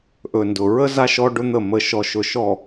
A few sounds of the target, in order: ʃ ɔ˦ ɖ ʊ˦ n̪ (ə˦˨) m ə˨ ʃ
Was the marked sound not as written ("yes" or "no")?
no